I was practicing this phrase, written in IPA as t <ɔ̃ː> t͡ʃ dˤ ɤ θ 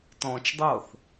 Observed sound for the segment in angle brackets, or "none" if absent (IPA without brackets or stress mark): ɔ̃ː